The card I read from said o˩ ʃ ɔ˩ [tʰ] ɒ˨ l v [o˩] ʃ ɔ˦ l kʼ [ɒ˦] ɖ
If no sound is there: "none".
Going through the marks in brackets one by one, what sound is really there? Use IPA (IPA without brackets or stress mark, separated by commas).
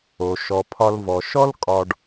pʰ, ɔ˩, ɒ˨